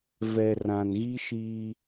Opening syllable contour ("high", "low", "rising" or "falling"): low